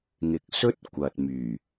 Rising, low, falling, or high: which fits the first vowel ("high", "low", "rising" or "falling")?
low